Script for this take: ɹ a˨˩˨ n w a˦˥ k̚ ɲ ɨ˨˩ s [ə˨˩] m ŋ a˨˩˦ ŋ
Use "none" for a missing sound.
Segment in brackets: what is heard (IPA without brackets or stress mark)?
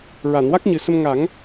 ə˧